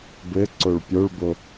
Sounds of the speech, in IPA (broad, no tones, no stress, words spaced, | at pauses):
bɘ ǀoɭpʲoɭbo